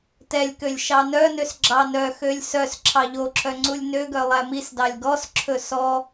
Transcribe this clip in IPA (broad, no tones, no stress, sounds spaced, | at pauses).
t ɛ lʲ k ø lʲ ʃ ɑ n œ n ø s ɡ͡ǁ ɑ n œ x ø lʲ s œ s ǁʰ ɑ ʎ o ǁʰ œ ŋ͡ǀ u lʲ n ø ɡ œ lˠ æ m i s d ɑ lʲ ɡ ɔ s ǁʰ ɵ s ɔ